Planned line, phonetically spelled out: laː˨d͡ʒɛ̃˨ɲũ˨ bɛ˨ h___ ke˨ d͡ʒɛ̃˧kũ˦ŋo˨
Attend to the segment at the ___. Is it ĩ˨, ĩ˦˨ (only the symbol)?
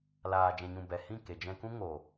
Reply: ĩ˦˨